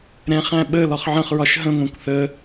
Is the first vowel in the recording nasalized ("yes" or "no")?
yes